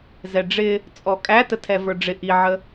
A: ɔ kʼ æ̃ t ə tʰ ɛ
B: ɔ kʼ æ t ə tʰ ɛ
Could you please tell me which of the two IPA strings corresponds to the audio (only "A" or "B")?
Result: B